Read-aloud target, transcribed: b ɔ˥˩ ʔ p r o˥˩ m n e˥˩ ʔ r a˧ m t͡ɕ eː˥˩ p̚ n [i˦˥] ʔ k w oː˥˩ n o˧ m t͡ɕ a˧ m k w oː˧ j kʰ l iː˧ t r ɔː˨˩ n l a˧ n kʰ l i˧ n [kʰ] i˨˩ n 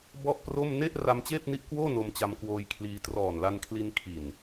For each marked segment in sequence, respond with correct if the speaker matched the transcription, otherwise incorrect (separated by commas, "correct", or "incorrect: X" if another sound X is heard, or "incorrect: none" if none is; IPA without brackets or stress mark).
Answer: correct, correct